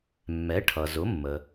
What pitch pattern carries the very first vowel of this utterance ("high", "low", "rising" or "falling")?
rising